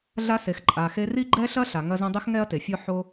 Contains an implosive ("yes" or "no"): no